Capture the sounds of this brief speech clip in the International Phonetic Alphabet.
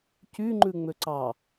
c y ŋ͡ǃ ʉ ŋ͡m ø ǀ ɑ

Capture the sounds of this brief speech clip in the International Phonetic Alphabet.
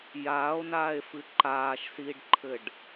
j aː o̯ n aː e̯ f ɨ ǃ aː ʃ s iː ɖ ǃʰ ɘ ɖ

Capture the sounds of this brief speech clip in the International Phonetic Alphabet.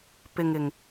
p ɪ˨ ŋ ɪ˨˩ ŋ

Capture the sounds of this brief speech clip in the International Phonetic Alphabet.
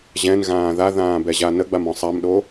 ʑ ɛ̃ n ɣ ãː ð a ð ãː b ɛ ʑ a n ə ɡ͡b a m ɔ̃ sˤ a m ɗ o

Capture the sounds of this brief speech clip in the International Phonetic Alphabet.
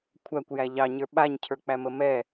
kʷʰ æ kʷ j æ ʎ ɑ ɲ ə˞ ɓ a ɲ cʰ ə˞ k͡p æ m ə m ɛ

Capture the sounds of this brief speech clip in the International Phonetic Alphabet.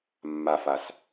mː a f a s

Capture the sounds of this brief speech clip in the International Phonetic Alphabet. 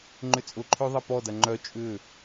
ŋ͡ǃ ʏ t͡sʼ ʊ ǃʰ ø ðˤ ɐ p ɔ d ɐ ŋ͡ǃ œ t͡ʃʼ ʏ

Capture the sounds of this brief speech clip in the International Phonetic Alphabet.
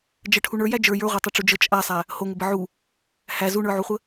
d͡ʒ ə ʈʰ u ɳ ə˞ j æ d͡ʒ ə˞ j ə˞ ʁʷ ə˞ tˤ o ʈ͡ʂ u d͡ʒ ə t͡ʃʼ a sˤ æ | h o ŋ ə b ə ʕ u | h æ z u ɳ ə˞ ʕ u χʷ ə

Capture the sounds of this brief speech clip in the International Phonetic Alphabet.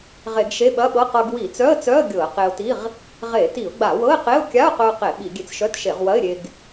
ʁ e˧˩˧ ɡ ʃ e˧˥˧ ɓ ɐ˧˥˧ ɓ ɤ˧˥˧ q ɤ˧ ɡ w i˧˩˧ t͡s œ˧˥˧ ə̯ t͡s œ˧˥˧ ə̯ ɡʲ ɤ˧˩˧ ə̯ q e˧ ʊ̯ t i˧˥˧ ʁ | ʁ e˧˩˧ t i˧˩˧ ʊ̯ ɡ͡b a˧˩˧ w ɤ˧˥˧ ɪ̯ q e˧˥˧ ʊ̯ kʲ a˧˥˧ ʊ̯ q œ˧ ʊ̯ q e˧˩˧ ɓ i˧˩˧ ɡʲ e˧ t͡s ʃ œ˧˥˧ t ʃ e˧˩˧ ʁ w ɐ˧˥˧ ɪ̯ ɾʲ e˧ ɡ

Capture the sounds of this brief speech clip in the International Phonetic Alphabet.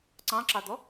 ǀ ɑ̃ ǁ ɑ d̪ ɔ

